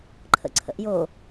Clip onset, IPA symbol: ǃʰ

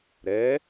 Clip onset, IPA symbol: ɾ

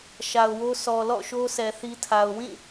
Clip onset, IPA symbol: ʃ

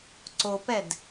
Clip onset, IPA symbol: ǀ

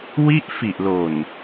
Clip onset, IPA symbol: w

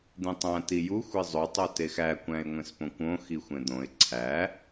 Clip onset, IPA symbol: d̪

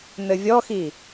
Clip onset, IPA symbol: n̪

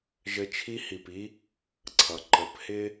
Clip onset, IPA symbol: ʒ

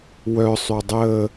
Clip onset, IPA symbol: w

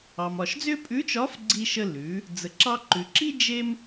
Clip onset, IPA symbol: ɑ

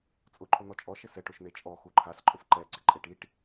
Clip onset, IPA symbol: t͡sʼ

